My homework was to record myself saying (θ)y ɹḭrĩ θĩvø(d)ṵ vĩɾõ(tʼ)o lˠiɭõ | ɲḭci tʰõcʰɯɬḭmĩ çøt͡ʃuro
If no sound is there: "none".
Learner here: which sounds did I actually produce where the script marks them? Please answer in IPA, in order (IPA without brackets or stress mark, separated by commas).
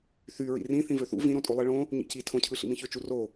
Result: θ, θ, tʼ